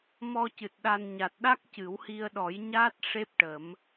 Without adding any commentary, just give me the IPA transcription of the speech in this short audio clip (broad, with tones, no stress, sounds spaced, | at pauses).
m ɔ˧ c ɨ˨˩ t̚ ɗ a˧ n ɲ a˨˩ t̚ ɗ a˦˥ k̚ c ɨ˨˩˦ w h i˧ ə̯ ɗ ɔ˨˩˦ j ɲ a˦˥ t̚ ʂ e˦˥ p̚ ʈ ə˨˩˦ m